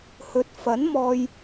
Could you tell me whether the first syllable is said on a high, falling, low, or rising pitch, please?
rising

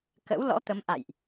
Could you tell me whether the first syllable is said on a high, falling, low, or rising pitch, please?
rising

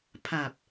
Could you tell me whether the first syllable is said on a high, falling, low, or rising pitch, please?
low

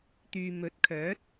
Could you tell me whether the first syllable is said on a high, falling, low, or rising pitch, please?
low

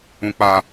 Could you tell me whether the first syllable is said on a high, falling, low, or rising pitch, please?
high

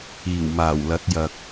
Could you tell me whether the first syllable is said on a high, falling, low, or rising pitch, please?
low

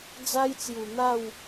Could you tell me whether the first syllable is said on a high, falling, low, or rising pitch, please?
high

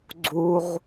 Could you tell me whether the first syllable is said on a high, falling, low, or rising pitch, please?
high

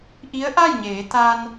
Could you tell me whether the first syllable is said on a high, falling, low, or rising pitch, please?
rising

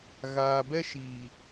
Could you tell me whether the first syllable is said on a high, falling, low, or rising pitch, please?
low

